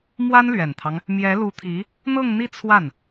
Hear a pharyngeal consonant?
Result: no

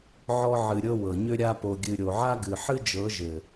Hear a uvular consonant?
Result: no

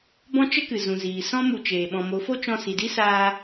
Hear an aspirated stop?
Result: no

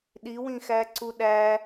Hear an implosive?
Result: yes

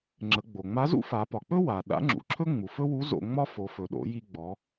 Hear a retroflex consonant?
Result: no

